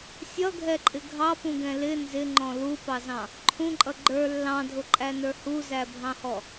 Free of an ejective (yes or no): no